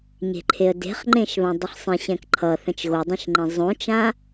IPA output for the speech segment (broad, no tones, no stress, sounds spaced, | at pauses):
ɲ e̤ ǃʰ e ə̯ d e̤ χ ŋ͡ǃ ẽ ʃ β ã dˤ ʌ χ sˤ ẽ ɕ ɛ̃ k ǃʰ ʌ θ ɛ̃ t͡ʃ ɣ o dˤ ẽ ʃ ŋ͡ǃ ẽ zˤ õ t͡ʃ ã